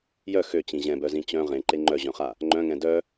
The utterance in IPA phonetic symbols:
jœ xøt͡ɕĩ ʑɛ̃bœzĩ t͡ɕœ̃ ʁẽǃe ŋ͡ǃœʑœ̃χa | ŋ͡ǃœ̃ŋɛ̃ dœ

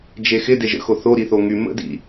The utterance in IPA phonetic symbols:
d͡ʒexɪ deʒə̰xo θo ɾiθoŋy mə̰dḭ

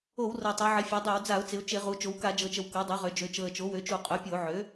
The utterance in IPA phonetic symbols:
o˧˩˧wrɤ˨˩ tˤo˩˧ʕɪ˩˧ fʲø˩˧dˤø˧˩˧wd͡za˧˩˧ʊ̯t͡sɪ˩˧ʊ̯ t͡ʃɪ˧˩˧ʁu˩˧ t͡ʃo˩˧wka˧˩˧d͡ʒɤ˨˩t͡ʃə˩˧w kɤ˩˥dˤo˩˥ ʁø˩˧d͡ʒø˩˧ t͡ʃɤ˨˩ə̯t͡ʃo˩˥wø˩˥t͡ʃu˧˩˧ qʼø˩˥pʲo˧˩˧ʕø˩˥

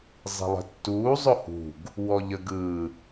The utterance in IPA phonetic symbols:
zˤi̤lˠə̤tːuː zˤʊhṳɡ | wɔʎəɡɯ

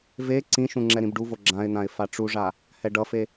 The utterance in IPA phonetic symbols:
ve ǀĩʃũ ŋ͡ǁɛɾĩbɖuvo ɡ͡ǁãɪ̯n̪ãɪ̯ faʈ͡ʂuʐa | hɛɖʌfe

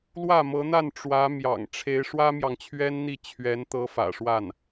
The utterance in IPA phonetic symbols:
lwä˥˩mɤ˧˥n̪a˥˩n ʈ͡ʂwä˧˥mjɑ̰˨˩ŋ ʈ͡ʂʰe˧˥ɪ̯ ʂwä˥mjɑ˨ŋt͡ɕʰɥɛ˥nn̪i˥˩ t͡ɕʰɥɛ˧˥nt̪ɤ˧˥fä̰˨˩ʂwa˥˩n

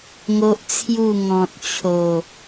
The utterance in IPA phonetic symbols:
ŋo˦ʔt͡sʰju˥˧ ŋɔ̃˨t̚t͡ɕʰo˨˩

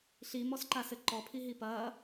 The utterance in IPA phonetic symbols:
ɬimɔsǃasɘ ǃɔpʰiɦi pɐː

